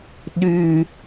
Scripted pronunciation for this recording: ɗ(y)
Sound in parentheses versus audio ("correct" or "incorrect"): correct